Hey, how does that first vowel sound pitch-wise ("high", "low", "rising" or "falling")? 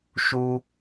high